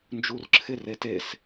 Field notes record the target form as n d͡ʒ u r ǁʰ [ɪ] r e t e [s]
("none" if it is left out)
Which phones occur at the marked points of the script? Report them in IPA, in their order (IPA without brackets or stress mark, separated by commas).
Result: ɪ, s